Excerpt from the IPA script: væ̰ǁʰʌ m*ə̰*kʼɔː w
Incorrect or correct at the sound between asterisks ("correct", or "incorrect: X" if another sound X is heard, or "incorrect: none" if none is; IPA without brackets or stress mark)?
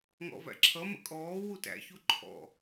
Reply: correct